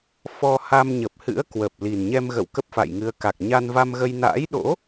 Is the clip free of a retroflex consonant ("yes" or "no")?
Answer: yes